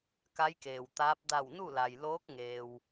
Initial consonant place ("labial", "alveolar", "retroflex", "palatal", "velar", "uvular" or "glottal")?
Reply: velar